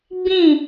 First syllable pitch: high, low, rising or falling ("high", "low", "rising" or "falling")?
falling